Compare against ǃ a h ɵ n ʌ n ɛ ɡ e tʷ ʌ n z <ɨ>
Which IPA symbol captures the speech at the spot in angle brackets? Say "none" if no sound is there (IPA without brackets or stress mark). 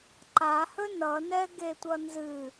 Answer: ɨ